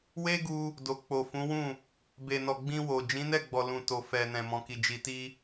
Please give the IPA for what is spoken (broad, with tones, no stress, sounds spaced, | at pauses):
w e˦ ɡ u˧ | d o˨ k͡p o˨ f ũ˨˦ w ũ˦˨ | b e˨ n ɔ˨ ɡ͡b ĩ˧ w o˨ d͡ʒ ĩ˨˦ n ɛ˦˨ ɡ͡b ɔ˨ l ũ˨ t o˨ f ɛ˨ n ɛ̃˨ m ɔ̃˨ k i˨ d͡ʒ i˨ t i˧